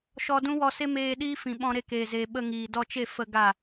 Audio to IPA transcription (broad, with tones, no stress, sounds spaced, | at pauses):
ʃ ɔ˧ d ũ˦ w ɔ˧ s e˦ m eː˧ ɗ iː˦ f ĩ˨ ɓ ɔ̃˧ ɾ e˧ k eː˨ z eː˨ ɓ ə˧ ŋ iː˨ d ɔ˧ t͡ʃ e˦˨ f ə˧ ɡ a˦˨